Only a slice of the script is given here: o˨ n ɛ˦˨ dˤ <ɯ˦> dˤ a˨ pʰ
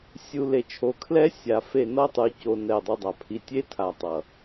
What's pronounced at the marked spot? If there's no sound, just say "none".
ɯ˦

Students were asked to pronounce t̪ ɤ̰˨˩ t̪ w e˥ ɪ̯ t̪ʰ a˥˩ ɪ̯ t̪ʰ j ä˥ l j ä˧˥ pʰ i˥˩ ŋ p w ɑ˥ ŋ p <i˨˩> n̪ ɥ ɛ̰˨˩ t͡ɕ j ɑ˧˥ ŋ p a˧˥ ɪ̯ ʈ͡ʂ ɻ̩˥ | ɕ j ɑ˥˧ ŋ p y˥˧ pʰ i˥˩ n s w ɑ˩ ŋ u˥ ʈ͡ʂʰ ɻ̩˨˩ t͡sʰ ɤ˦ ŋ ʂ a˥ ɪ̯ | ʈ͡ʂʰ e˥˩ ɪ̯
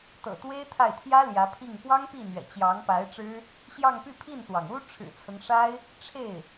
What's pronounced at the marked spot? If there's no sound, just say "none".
i˥˩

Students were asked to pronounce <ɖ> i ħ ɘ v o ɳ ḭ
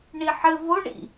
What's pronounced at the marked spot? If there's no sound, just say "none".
ɳ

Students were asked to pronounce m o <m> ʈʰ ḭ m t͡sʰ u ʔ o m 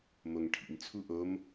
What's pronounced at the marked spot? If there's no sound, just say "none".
ŋ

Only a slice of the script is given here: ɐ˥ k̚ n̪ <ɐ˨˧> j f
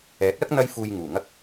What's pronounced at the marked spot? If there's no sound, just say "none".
ɐ˧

